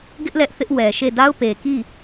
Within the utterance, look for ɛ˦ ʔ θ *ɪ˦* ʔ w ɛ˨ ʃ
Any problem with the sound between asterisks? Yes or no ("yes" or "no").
no